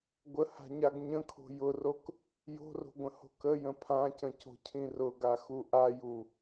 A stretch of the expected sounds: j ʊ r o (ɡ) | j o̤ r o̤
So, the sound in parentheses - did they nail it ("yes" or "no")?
no